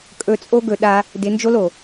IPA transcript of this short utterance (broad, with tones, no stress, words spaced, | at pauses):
kʼɵ˧t͡sʼo˦ ɡɵ˧ɗa˧ | dɪ˨˦nd͡ʒo˦lo˨